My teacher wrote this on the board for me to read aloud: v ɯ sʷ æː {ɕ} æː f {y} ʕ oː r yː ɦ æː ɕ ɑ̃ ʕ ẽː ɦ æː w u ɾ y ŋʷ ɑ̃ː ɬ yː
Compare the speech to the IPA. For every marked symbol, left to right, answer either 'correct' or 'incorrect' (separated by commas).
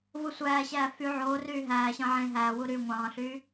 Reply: correct, correct